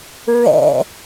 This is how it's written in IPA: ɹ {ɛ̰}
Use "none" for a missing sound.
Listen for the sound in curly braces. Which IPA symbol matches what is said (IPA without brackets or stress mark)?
ɛ̰